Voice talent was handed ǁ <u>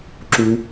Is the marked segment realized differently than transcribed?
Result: no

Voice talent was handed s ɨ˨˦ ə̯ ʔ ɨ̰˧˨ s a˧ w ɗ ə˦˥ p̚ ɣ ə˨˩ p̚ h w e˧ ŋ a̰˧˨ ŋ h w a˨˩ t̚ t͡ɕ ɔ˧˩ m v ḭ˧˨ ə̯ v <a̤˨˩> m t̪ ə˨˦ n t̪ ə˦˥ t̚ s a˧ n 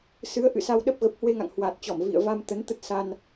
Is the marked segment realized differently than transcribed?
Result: yes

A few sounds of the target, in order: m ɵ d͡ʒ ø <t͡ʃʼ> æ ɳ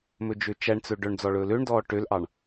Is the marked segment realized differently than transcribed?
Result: yes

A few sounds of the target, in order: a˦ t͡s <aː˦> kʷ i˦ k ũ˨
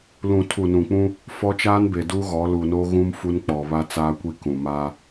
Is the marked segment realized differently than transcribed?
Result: no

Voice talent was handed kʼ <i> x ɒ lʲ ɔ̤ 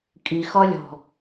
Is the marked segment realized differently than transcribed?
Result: no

